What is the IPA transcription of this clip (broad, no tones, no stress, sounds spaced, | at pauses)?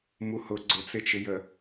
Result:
m u h ʊ ɡ͡ǀ ʊ t͡s ɪ t͡ʃ ɪ j ə